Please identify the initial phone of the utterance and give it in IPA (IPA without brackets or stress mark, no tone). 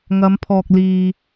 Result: ŋ